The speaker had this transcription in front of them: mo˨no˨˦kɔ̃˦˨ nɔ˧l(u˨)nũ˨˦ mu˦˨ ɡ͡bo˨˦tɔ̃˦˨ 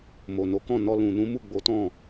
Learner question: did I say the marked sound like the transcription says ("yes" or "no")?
no